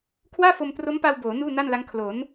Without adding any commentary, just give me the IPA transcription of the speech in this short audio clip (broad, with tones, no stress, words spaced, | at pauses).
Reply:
kʰwaː˥˩fo˧mtro˦˥mpa˧w boː˩˦ nuː˥˩na˥˩nla˦˥ŋ kʰlo˩˦n